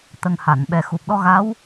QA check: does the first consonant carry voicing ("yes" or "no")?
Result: no